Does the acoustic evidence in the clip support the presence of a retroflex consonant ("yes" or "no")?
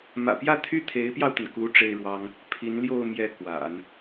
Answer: yes